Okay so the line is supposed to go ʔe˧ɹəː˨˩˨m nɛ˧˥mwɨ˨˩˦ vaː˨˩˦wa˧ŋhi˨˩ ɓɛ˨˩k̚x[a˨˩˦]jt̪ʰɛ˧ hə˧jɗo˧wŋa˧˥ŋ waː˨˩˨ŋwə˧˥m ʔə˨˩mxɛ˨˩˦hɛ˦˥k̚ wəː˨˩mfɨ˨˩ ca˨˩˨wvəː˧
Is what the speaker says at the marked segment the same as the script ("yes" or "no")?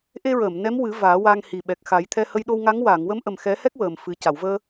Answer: yes